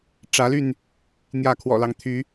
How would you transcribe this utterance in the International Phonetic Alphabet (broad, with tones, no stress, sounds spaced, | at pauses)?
ʈ͡ʂ ä˨˦ l y˥˨ n | n̪ j ä˥˨ kʰ w ɔ̰˨˩ l ɑ˦ ŋ t̪ʰ y˨˦